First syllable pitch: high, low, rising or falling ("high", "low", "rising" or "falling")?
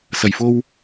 low